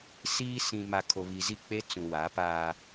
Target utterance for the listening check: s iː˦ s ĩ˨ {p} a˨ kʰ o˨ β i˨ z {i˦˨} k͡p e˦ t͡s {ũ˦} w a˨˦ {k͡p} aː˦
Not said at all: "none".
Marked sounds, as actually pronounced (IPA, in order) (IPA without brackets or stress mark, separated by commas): m, i˦˨, ũ˨, p